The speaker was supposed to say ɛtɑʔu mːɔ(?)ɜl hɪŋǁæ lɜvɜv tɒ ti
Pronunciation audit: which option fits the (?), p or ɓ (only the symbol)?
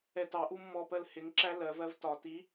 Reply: p